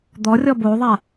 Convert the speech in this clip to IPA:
d̪ ɔ rʲ ɔ b o ðˤ a

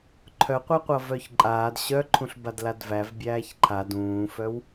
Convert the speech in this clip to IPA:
ǃʰ œ qʷ ɜ qʷ ʌ v œ ç ǃʼ aː d ɕ œ ǃʰ ũ ɬ b a d l a d v æ v bʲ æː ç ǃʰ a d ũː f œ w

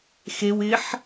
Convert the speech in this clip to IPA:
x e w ɪ ħ

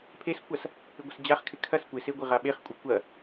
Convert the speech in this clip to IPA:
pʰ e s kʷ a s | ɪ ɡʷ ə s d͡ʑ a χ kʰ ɪ kʰ ɐ s kʷ ɪ s e ɡʷ ɪ ʁ a ɓ e χ kʷʼ ɐ kʷ ɐ

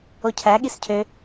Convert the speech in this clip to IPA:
o cʰ æ ɠ i s cʰ ø

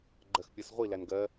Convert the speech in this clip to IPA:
ɡ͡ǃ ɜ x pʲ ɜ s ʁʷ i l æ n ɡ ɜ

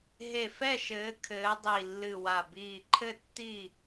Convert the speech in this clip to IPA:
ɦ e˧˩ f ɛ˥˨ ʃ ɘː˨˦ kʰ ɘː˨˦ dˤ i˧˩ lː ɨ˧˩ w a˧˩ b iː˧˩ ǃʰ ɘ˥˨ tː i˥˨

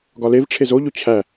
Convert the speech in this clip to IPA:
ɡ ɒ l e v ʈ͡ʂʰ e z o ʎ o t͡ɕʰ æ

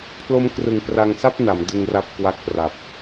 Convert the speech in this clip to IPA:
pʰ l o˦˥ m k r ɯ˨˩ ŋ p r a˧ ŋ s a˥˩ p̚ n a˩˦ m d ɯ˧ ŋ r a˦˥ p̚ k w a˦˥ k̚ p r a˨˩ p̚

